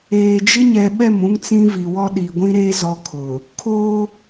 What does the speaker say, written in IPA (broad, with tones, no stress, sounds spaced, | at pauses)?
eː˨ d͡ʒ ɪ˦ ɲ ɛ˨ ɓ ɛ˦˨ m ũ˦ ŋ t͡s ĩ˦ v i˨ w ɔ˦ ɗ i˨ ɡʷ ĩ˦ ɾ eː˦ z ɔ˦ kʰ ʊ˨ | kʰ oː˦